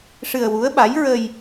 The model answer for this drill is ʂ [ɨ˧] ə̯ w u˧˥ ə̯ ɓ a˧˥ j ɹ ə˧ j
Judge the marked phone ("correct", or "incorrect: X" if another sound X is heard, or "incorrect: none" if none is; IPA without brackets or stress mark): correct